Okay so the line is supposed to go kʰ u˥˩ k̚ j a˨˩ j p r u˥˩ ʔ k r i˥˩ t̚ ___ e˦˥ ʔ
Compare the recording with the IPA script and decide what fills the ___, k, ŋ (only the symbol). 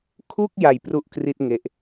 ŋ